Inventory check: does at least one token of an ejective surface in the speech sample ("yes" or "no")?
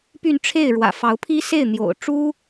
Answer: no